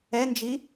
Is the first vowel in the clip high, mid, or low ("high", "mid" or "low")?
mid